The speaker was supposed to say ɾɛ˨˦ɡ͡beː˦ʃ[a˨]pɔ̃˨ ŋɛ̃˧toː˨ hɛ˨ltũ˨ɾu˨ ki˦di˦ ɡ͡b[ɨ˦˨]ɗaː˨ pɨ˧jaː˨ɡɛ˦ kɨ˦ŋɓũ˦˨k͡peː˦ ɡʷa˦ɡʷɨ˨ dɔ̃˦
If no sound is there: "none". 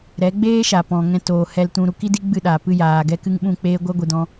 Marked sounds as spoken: a˨, ɨ˦˨

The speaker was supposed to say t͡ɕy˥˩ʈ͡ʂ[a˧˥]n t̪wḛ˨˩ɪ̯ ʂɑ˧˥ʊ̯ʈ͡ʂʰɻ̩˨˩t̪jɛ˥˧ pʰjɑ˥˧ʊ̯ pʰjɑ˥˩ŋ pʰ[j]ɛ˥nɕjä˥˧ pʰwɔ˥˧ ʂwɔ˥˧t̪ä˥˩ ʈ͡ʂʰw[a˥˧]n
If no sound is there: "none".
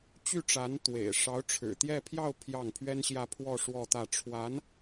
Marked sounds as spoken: a˧˥, ɥ, a˧˥

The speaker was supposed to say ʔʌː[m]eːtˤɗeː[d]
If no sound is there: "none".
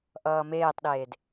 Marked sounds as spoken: m, d

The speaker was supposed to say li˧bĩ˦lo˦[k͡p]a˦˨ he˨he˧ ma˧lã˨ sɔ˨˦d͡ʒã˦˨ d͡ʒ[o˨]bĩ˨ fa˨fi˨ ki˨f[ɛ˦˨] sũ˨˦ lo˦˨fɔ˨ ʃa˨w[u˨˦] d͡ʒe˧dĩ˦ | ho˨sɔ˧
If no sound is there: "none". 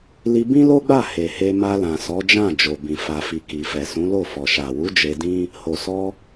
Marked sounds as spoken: ɡ͡b, o˨, ɛ˨, u˨˦

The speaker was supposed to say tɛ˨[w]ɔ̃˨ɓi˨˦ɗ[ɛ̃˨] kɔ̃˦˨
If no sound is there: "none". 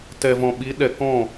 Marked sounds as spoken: v, ɛ˨

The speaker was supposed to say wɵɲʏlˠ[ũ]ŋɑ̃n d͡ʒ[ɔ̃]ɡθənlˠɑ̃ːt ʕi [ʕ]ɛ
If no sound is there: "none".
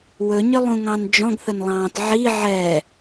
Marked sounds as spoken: ũ, ɔ̃, ʕ

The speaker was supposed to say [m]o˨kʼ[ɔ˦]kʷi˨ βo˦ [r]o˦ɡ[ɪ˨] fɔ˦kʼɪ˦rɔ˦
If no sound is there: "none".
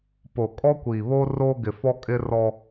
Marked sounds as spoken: p, ɔ˦, r, ɪ˨

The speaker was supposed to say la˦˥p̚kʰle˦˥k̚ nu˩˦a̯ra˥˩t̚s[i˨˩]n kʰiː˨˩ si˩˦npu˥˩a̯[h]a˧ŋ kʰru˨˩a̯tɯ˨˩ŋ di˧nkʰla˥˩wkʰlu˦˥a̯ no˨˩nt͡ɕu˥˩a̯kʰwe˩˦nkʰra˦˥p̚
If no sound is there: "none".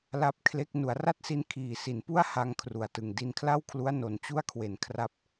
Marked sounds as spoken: i˧, h

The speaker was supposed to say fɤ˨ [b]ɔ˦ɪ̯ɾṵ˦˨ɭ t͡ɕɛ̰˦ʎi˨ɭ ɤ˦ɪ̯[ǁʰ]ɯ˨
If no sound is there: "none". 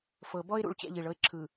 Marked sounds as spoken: b, ǁʰ

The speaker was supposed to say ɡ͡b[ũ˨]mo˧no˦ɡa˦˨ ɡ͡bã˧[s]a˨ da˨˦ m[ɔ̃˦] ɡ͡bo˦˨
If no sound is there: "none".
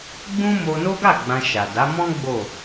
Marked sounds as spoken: ũ˦, ʃ, ɔ̃˦

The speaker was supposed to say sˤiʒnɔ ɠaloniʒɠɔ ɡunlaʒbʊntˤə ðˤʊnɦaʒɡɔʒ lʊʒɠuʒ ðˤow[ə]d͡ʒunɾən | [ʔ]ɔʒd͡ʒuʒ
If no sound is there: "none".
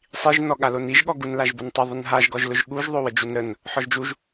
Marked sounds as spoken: ə, ħ

